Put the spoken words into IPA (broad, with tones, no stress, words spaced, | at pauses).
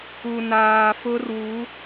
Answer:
u˨naː˨fʊ˦rwu˨˦